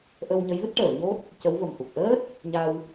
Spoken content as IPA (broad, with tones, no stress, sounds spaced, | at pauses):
ʔ ə˧ w ɲ ə˧˥ j v ɨ˦˥ t̚ ʈ əː˨˩˨ ɲ o˦˥ t̚ | c ə˧˥ w v ə˨˩ m h u˨˩ k̚ ʔ əː˦˥ t̚ | ɲ a˧ w